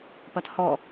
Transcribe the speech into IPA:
p ɐ t h ɔ

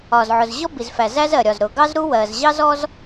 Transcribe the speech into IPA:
ɒ˩ z ʕ ʊ˩ z ʑ ɔ˥ b i˩ z f æ˩ z æ˥ z ɜ˩ ɾʲ ɒ˩ z ɾ ʊ˩ ɡ ɑ˥ z ɾ u˥ w ɜ˩ z ʑ ɑ˥ z ɔ˥ z

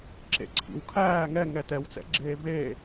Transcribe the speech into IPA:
ǁ ḛ ǀʰ ḭ w kʰ æː ŋ ɛ ŋ ɛ t ɛ w t͡s ɛ̰ ɡ͡ǁ eː v e

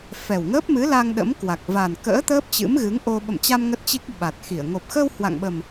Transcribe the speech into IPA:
f ɛ˨˩ w ŋ əː˦˥ p̚ m ɨ˨˦ l a˧ ŋ ɗ ə̰˧˥ m k w a˨˩ k̚ v a˨˩ n k ə̰ː˧˥ t̪ əː˦˥ p̚ t͡ɕ ɨ̰˧˥ m ɣ ɨ˨˦ ŋ ʔ o˧ ɓ ə̰˧˨ m t͡ɕ a˧ m ŋ ə˦˥ t̚ t͡ɕ i˦˥ k̚ ɓ a˨˩ t̚ x i˧˩ ə̯ ŋ o˨˩ p̚ x ə˧ w h w a̰˧˨ ŋ ɓ ə˨˩ m

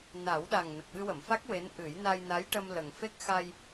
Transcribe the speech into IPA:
n a˨˩˦ w ɗ a˨˩ ŋ n ə˨˩ k̚ ɓ ɨ˧ w ə˨˩˨ m f a˦˥ k̚ w e˧˥ n ʔ ɨ˨˩˦ j n a˧ j n a˧˥ j ʈ ə˧ m l ə˨˩ ŋ f e˦˥ k̚ x a˧ j

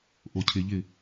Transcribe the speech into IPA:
ʔ o cʰ ɪ ʎ ɪ

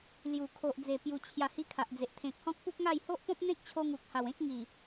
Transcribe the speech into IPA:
l j u˨˩ kʰ o˨ ʔ d͡z e˨˩ p j u˨˩ t͡ɕʰ j a˨˩ h i˧ kʰ a˨ ʔ d͡z e˨ ʔ t̪ʰ ẽ˨ k̚ h ɔ̃˦ k̚ p u˦ k̚ ŋ a˥˧ j h o˦ ʔ p ɔ̃˦ p̚ n̪ ẽ˦ k̚ t͡ɕʰ o˧ ŋ u˨ k̚ h a˨˩ w ẽ˦ k̚ ŋ i˨˩

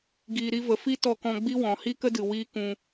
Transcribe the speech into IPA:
ɡ iː˨ ɾ i˧ v ə˨ f i˦ t ɔ˧ k ɔ̃˧ ɡ͡b i˦ w ɔ̃˨ h i˦ k ə˦ d ɨ˨ w iː˦ k ũ˧

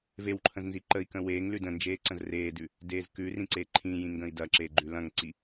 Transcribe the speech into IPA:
v e w ǃʰ ə̃ z n z i ǃ ə i̯ k ə̃ w eː ŋ l ʉ d ə̃ n d͡ʒ eː ǀ ə̃ z r eː d ʉ | d eː z k ʉ r ĩ ǀ e ǃʰ ĩ j ĩ ŋ ɡ ə̃ i̯ d ɐ ǁ e ɡ͡ǃ ʉ l ɐ̃ ŋ ǀ i

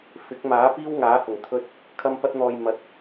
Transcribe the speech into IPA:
f ɪ˨˥ k̚ m aː˨˥ p iː˥ w ŋ aː˨˥ h ʊ˨˩ ŋ t̪ʰ ɵ˨ t̚ | kʰ ɐ˧ m p ɐ˧ t̚ n̪ ɔː˨ j m ɐ˨˥ t̚

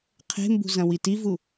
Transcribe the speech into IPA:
qʰ e̤ m b ṳ z ɐ̃ w i t i v u

